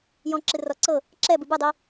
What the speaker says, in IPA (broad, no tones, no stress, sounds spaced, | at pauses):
j ɔ̃ ǁ ɨ r ɔ ǀ ɤ | ǁ ɛ b ɨ b ɨ dˤ i